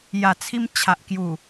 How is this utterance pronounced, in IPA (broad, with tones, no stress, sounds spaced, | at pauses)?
j a˨˩ t͡sʰ i˧ m t͡ɕʰ a˨ ʔ k j u˨˩